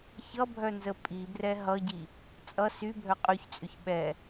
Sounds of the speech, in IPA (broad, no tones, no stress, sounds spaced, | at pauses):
ç ʌ bʱ œ n z ə pʼ i b r ɛ ɦ ʌ ɟ i | t͡sʼ ʌ s y bʱ œ qʼ y ç t͡sʼ ʏ ç ɓ ɛ